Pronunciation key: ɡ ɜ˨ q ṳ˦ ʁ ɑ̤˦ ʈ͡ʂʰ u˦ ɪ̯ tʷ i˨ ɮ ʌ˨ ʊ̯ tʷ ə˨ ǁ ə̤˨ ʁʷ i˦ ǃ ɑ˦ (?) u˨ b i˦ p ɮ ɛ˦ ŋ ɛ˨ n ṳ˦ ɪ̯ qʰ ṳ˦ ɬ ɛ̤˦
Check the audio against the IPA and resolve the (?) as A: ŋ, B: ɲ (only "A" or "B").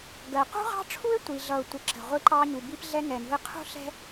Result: B